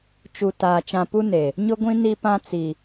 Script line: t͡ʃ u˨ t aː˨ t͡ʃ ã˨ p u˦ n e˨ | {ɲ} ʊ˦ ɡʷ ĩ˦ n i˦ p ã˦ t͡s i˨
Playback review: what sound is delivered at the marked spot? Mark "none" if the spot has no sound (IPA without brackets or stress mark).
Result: ɲ